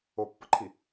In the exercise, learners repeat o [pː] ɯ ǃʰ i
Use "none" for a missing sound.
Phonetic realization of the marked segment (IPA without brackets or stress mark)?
pː